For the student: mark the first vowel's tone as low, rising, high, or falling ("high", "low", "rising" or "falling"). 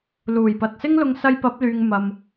low